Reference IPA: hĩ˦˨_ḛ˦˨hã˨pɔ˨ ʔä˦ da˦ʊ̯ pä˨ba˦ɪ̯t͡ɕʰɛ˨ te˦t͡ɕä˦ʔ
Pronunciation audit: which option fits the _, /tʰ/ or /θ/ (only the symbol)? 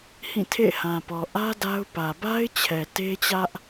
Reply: tʰ